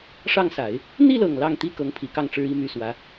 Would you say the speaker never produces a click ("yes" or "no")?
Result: yes